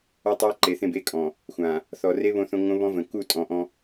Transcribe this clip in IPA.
ɔ˦ tˤ a˦ ǃ e˨ θ ẽ˦˨ b e˦ kʼ ɔ̃˨ | xʷ ã˨ | θ ɔ˨ r e˦ β õ˦ θ õ˦ ŋ õ˦ β ɔ̃˦ v ə̃˨ k u˦˨ tʼ ɔ̃˨ ʔ ɔ̃˦

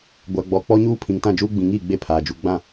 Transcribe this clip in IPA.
ɡʷ a˨ ɡ͡b ɔ˨ k͡p ɔ˦ ɲ uː˦ pʰ ĩ˨ ŋ t ã˦˨ d͡ʒ uː˦ ɡ͡b ĩ˨ ŋ iː˦˨ ɡ͡b e˦˨ pʰ aː˨ d͡ʒ u˨ ɡ͡b ã˦˨

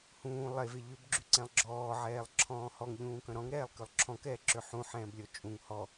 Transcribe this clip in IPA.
h ũː lˠ e v e ʎ ʏ b ɡ͡ǁ y ǀ ɛ̃ lˠ ɡ͡ǁ ɔː ʕ ɛː lˠ ǁʰ ɔ̃ː h ɔ ŋ ʎ ũː k œ̃ ɾ ɔ̃ ŋ ɾ ɛː lˠ k ø lˠ ǁʰ ɔ̃ k ɛː ǁ ø ħ ũ ħ ɛ̃ː b lʲ ɔ t͡ʃʼ ũ ŋ h ɔ

